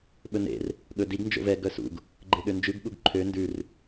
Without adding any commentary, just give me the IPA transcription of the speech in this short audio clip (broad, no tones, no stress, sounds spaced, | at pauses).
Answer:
ɓ ɵ n ḛ r | ɠ ɵ d i ɡ n d͡ʒ o̰ v ɛ ɡ œ s ṵ ɡ | ɡ͡ǃ e ɠ ø n d͡ʒ ʉ ɡ ɠ u ɡ ǃʰ ø n d ʉ r